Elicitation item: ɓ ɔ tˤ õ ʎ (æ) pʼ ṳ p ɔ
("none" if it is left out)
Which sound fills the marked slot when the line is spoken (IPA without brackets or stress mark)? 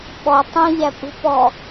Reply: æ